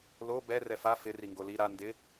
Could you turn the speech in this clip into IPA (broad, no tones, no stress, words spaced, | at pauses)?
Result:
lo bɛ rɛfa fɪ riŋɡoli ɾa ndɪ